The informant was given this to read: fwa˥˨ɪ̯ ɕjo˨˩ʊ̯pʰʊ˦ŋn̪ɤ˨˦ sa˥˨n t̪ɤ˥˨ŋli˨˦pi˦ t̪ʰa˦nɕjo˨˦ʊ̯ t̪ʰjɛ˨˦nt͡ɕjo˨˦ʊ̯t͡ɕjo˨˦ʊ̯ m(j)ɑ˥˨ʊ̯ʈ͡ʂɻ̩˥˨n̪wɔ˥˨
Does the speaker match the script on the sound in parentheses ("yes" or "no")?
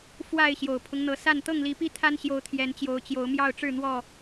yes